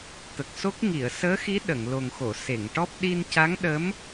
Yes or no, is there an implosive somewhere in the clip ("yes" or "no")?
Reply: yes